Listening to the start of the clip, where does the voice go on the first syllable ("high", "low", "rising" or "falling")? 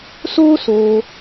high